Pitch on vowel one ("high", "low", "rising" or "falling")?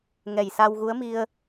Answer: low